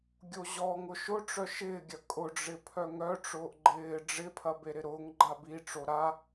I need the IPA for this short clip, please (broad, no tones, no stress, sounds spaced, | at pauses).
ɡʲ o ʑ ɔ ŋ ʊ ʃ ʊ ʈ͡ʂ œ ʃ ɪː ɡʲ ɐ kʼ ʊ ɖ͡ʐ ɪ pʰ œ ŋ œ ʈ͡ʂ ʊː ʔ ɡ͡ǃ ɪː ɖ͡ʐ ɪ pʰ ɐ b e ɾ ɪ ɾ ʊː ŋ ɡ͡ǃ a b i ʈ͡ʂ o ɾ a